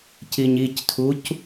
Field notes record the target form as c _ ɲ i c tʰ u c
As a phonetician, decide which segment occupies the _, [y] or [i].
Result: i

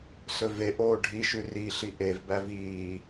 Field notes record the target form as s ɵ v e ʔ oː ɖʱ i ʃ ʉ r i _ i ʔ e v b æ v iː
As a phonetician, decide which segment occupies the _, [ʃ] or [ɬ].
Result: ɬ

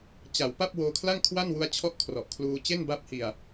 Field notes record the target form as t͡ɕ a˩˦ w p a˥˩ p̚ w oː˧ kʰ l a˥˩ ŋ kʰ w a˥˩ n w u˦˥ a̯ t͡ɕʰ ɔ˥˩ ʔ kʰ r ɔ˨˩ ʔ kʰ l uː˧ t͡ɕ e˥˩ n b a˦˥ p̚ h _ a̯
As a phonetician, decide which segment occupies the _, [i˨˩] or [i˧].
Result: i˨˩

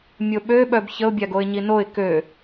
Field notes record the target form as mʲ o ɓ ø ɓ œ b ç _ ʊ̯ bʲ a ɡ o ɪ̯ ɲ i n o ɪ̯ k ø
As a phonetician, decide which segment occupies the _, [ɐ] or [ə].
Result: ə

